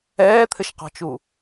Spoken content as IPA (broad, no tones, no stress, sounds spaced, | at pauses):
ɛː t̪ʰ ɘ ʃ q ɔ̤ t͡ʃ u